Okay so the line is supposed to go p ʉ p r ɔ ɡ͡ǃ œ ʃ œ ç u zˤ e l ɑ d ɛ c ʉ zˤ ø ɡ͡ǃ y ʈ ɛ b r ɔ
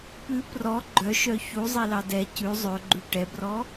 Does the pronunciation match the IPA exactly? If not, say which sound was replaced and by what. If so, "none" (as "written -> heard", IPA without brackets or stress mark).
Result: none